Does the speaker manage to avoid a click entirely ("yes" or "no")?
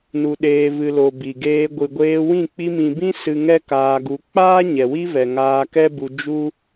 yes